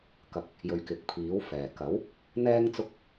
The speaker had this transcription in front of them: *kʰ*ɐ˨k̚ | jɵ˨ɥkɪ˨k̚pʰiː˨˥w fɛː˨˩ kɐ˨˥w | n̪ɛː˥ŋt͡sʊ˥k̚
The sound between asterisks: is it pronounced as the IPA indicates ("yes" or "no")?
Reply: no